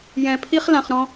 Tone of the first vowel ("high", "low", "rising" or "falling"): low